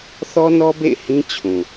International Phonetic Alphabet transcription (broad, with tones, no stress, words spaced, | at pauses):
θɔ˦nɔ˦bḛ˦˨ɪ̯ hĩ˦ t͡ɕʰũ˨